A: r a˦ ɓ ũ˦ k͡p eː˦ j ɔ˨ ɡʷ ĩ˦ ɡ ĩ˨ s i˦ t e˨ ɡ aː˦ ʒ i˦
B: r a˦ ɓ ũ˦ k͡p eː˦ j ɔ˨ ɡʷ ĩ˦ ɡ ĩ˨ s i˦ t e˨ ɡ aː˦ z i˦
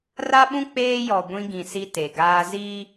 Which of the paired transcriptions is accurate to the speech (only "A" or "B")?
B